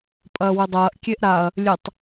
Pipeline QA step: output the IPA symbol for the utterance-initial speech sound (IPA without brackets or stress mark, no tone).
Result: pʼ